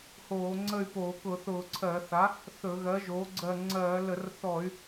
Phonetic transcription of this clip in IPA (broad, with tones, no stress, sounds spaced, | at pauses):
h oː˧˩˧ ŋ͡ǀ ə˦˨ y̯ p oː˧˩˧ k ʊ˧˩˧ θ ʊː˧˩˧ ǀʰ ɜ˧˩˧ θ a˩˥ | θ ɵ˧˩˧ ɣ ɜ˩˥ ʒ oː˩˥ ɡ͡ǀ ɜ˦˨ ŋ͡ǀ ɜː˧˩˧ l ə˧˩˧ r θ ɔ˧˩˧ y̯